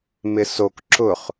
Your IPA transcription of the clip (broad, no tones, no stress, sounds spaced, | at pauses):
m ɪ s o k ǁ ʊ χ